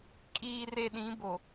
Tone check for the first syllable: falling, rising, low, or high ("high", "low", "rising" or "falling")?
low